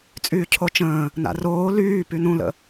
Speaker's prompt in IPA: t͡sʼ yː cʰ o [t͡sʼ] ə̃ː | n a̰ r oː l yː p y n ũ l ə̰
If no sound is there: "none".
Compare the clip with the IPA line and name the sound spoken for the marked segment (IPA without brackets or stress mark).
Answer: t͡ʃ